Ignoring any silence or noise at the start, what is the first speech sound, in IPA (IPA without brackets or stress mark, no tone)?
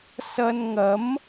s